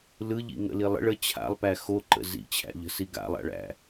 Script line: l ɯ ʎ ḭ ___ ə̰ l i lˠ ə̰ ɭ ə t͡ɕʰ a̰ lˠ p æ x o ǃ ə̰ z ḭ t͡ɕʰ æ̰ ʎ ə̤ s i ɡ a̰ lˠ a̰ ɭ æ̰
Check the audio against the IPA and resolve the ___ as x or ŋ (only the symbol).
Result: ŋ